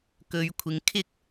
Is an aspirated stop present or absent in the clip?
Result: present